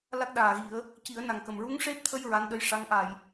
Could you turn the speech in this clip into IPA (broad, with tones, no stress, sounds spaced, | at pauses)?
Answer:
l a˦˥ k̚ ɗ aː˨˩ ɣ i˨˩˦ ə̯ | c i˨˩˦ ə̯ n a˨˩ ŋ k ə˨˩ m ɹ u˧˥ ŋ ʂ e˦˥ p̚ t̪ʰ ə˧ j ɹ a˧˥ n ɗ ə˧˥ j ʂ a˧˥ ŋ ʔ a˨˩˨ j